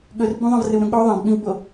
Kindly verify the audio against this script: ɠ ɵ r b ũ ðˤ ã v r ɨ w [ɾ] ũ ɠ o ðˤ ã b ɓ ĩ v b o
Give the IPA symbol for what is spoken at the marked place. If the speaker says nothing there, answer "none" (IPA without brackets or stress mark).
ɾ